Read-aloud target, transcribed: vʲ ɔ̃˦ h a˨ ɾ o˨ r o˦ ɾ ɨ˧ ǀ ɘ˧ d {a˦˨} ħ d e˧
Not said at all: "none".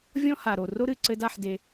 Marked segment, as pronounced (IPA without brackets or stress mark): a˦˨